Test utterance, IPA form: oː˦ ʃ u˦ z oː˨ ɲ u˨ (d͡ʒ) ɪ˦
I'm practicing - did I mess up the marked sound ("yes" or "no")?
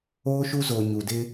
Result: yes